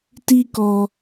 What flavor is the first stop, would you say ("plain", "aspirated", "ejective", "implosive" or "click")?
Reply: plain